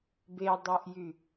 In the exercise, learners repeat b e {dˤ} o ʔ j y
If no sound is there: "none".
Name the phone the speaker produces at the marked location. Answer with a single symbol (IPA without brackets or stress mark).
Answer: dˤ